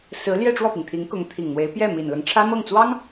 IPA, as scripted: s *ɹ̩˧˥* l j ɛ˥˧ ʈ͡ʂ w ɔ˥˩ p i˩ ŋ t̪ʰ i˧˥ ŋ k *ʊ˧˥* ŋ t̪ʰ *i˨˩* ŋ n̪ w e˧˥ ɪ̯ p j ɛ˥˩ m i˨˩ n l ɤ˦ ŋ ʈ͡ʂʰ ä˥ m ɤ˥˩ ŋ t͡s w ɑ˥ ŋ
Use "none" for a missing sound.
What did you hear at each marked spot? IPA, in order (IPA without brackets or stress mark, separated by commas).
ɹ̩˧˥, ʊ˧˥, i˨˩